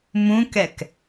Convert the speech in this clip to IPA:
m ũ k ɛ k

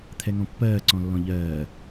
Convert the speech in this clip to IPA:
t̪ʰ ɛ ŋ ɔ̃ pː ɜː ǀ ɔ̃ lː ɔ̃ ʎ ɜː

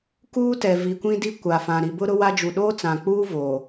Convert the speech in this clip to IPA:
k uː˦ t ɛ˨ v i˨ kʷ ĩ˦ d i˦ kʷ a˨ f ã˨ ɾ i˨ b ʊ˦ ɾ ʊ˦ w a˦ d͡ʒ u˨ ɗ oː˦ t͡s ã˨ k͡p uː˦ v oː˨

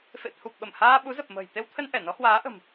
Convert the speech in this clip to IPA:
f ḛ˧˨ t̪ʰ u˨˩ p̚ ɓ ə˧˩ m h aː˧ ɓ u˨˦ z ə˨˩ p̚ m ə̤ː˨˩ j t̪ e˧ w t̪ʰ ə˧ n ʔ ɛ˧˩ n ɔ˨˦ h w aː˨˦ ʔ ə̤˨˩ m

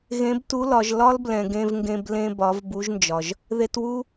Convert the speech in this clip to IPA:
ɣ ẽ˧˥ b t u˧˥ l ɒ˩˧ ʒ l ɒ˥ l b l ɛ̃˩ ɡ ẽ˧ v ŋ ɡ ẽ˧ b l ẽ˧ b ɒ˩˧ v b u˧˥ ʒ n d͡ʒ ɒ˩ ʒ | ð e˧ t w u˥

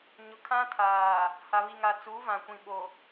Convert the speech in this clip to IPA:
ɲ ʊ˨ kʰ ã˦ tʰ aː˨ | h a˨ β i˨ ŋ a˨ t͡s uː˨˦ v ã˨ kʷ ĩ˨ ɓ o˨

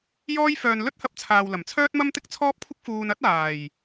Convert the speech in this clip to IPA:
j ɔː˥ j f œː˧ n l ɵ˥ t̚ h ɐ˧ p̚ t͡sʰ aː˨ w l ɐ˨˩ m t͡sʰ œː˥ t̚ m ɐ˥ m t̪ ɪ˥ k̚ t͡sʰ ɔː˥ p̚ kʷʰ ɪ˥ k̚ f uː˧ n ɐ˥ t̚ aː˨˩ j

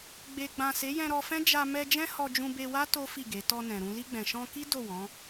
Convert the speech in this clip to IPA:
ɡ͡b e˨ ɡ͡b ã˨ s e˨˦ j ɛ̃˧ ɾ ɔ˧ f ɛ̃˦ d͡ʒ a˧ m ɛ˧ d͡ʒ ɛ̃˦ h ɔ˧ d͡ʒ ũ˧ b e˧ w a˦ t o˦ f i˦˨ ɡ e˨˦ t ɔ˧ n ɛ̃˨ ɾ ũ˧ l i˧ ɡ͡b ɛ̃˨ ʃ ɔ̃˧ k i˦ d o˦˨ w ɔ̃˨˦

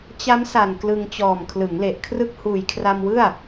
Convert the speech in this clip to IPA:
t͡ɕ a˦˥ m s a˨˩ n k l ɯ˧ ŋ t͡ɕ ɔː˨˩ m kʰ l ɯ˩˦ ŋ l e˨˩ ʔ kʰ r ɯ˥˩ k̚ h uː˨˩ j kʰ r a˧ m w ɯ˥˩ a̯

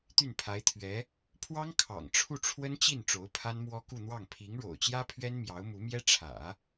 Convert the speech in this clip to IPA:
t̪ y˥˩ n pʰ a˧˥ ɪ̯ t̪ʰ ɥ ɛ˧˥ | pʰ w ɑ˥ ŋ kʰ ɑ̰˨˩ ŋ ʈ͡ʂʰ u˥˩ ʈ͡ʂʰ w ə˥ n t͡ɕ i˥˩ n ʈ͡ʂ o˧˥ ʊ̯ pʰ a˥ n m w ɔ˥ k u˥˧ n̪ w ɑ˥˩ ŋ pʰ i˧˥ ŋ ɻ o̰˨˩ ʊ̯ t͡ɕ j ä˥ pʰ ɥ ɛ˥ n m j ɑ˧˥ ʊ̯ m u˧˥ m j ɛ˥ ʈ͡ʂʰ ä̰˨˩˦

